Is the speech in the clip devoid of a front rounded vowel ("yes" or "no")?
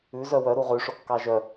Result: no